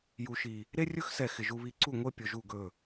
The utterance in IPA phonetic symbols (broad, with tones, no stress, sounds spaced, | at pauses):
j u˨ ʃ i˨ | ɾ e˦ rʲ ɵ˦ x s ɛ˨ x ɪ˨ ʒ u˦ β i˦ ǀ u˦˨ ŋʷ e˦ pʲ ɵ˨ ʒ u˦˨ ɡ ɵ˦˨